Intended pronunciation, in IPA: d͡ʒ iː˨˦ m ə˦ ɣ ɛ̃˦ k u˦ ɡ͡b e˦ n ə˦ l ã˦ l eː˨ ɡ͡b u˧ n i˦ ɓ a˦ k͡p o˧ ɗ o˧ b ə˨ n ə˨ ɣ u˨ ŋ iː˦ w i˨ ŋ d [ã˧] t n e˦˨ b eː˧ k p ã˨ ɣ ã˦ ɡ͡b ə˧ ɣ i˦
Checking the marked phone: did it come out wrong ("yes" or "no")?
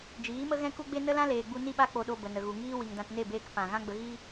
no